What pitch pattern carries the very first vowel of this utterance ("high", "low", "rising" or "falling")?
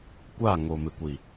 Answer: falling